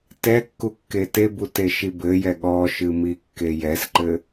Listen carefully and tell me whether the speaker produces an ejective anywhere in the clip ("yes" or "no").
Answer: no